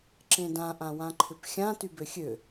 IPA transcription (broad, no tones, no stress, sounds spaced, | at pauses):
ǁ ẽ d ã ʔ ã w ã ǃʰ ʏ p xʲ ã t y b ø xʲ ø